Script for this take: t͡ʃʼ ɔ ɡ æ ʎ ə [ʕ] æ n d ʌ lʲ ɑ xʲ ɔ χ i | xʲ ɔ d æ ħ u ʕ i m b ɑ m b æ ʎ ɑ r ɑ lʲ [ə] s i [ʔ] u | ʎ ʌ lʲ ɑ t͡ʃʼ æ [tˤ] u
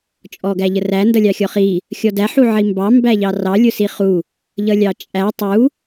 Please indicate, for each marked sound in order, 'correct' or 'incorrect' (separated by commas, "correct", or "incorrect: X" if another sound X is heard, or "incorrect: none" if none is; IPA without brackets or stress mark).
incorrect: r, incorrect: ʊ, incorrect: χ, correct